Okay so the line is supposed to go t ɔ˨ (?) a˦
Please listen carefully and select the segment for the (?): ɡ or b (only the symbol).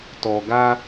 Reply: ɡ